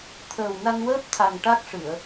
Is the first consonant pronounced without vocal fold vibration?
yes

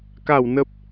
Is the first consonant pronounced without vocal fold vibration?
yes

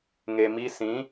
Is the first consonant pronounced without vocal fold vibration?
no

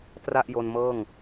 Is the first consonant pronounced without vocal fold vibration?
yes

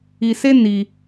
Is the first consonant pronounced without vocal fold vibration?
yes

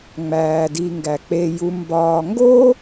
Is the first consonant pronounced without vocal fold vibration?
no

